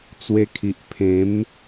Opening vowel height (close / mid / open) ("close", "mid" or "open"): mid